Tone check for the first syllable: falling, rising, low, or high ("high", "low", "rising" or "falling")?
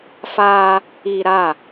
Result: high